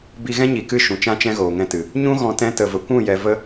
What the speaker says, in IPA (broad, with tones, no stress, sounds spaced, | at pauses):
b i˧ ɣ ɛ̃˦ ɲ i˨ k ɨ˦˨ ʃ ũ˨ t͡ʃ ã˦ t͡ʃ ɛ̃˦ ɣ oː˨ ŋ ɛ̃˧ t ɨ˨ | ɲ ũ˦ ɣ ɔ̃˧ t ɛ̃˧ t ə˨ v ə˨ kʷ ũ˦˨ j ɛ˧ v ə˦